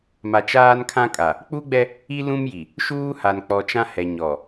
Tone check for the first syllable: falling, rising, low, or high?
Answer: low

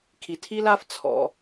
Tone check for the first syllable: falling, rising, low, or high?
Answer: low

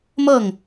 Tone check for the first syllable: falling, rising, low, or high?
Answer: falling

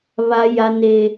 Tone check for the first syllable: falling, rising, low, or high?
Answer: high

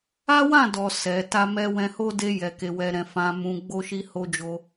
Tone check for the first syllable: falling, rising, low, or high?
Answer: high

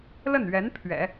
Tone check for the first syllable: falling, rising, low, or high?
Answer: falling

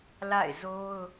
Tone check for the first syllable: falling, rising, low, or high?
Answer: falling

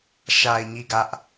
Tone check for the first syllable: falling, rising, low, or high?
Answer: low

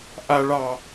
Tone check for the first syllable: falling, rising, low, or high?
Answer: low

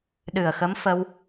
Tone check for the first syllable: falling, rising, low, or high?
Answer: low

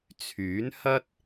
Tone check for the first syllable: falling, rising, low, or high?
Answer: rising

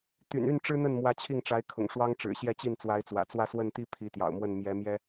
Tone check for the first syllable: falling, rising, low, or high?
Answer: low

